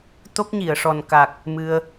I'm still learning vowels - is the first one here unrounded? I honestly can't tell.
no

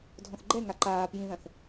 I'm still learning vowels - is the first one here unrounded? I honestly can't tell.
no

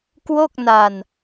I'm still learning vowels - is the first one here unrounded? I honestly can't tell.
no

